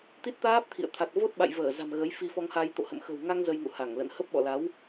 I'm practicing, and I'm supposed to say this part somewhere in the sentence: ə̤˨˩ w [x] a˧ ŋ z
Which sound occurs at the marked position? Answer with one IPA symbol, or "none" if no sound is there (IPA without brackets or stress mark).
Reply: ŋ